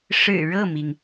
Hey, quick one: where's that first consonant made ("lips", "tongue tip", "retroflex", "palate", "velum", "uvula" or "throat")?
retroflex